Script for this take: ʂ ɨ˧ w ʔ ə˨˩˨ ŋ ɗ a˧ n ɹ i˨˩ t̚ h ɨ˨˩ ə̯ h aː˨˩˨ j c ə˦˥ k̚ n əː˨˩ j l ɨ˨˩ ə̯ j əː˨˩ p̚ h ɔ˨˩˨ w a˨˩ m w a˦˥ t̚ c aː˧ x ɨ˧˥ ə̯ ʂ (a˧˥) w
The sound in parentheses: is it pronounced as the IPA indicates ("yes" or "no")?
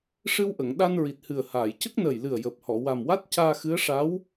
yes